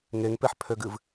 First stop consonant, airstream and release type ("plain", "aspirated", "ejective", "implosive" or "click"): plain